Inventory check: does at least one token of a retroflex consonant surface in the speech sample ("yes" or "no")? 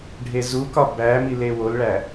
yes